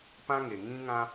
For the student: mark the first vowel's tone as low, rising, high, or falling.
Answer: high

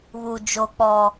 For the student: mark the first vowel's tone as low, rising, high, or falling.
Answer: low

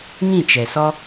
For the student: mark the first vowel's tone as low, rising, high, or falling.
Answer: falling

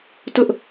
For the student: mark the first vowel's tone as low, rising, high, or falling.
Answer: high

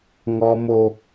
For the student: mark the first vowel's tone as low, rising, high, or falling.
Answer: high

